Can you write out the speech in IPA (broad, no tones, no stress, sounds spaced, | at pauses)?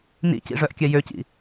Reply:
n ḭ c ḭ ʐ œ ʔ kʲ ɛ j ø c ḭ